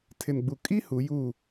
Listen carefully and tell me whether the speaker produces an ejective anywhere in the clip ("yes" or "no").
yes